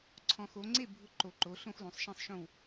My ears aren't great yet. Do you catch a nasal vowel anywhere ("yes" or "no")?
yes